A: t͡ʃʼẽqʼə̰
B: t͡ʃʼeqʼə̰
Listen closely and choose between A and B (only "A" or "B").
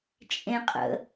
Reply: A